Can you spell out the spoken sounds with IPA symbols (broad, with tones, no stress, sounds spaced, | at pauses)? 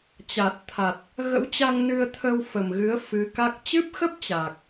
t͡ɕ a˨˩ t̚ t̪ʰ a˨˩ t̚ | ɣ ə̰˧˥ w t͡ɕ a˧ ŋ n ɨ˧ ə̯ t̪ʰ ə˧ w f ə˨˩ m ɣ ɨ˨˦ ə̯ f ɨ˨˦ k a˦˥ k̚ t͡ɕ ɨ˦˥ p̚ x ə˦˥ p̚ t͡ɕ aː˨˩ k̚